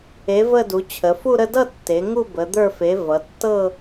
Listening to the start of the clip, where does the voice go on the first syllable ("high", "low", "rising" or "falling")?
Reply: rising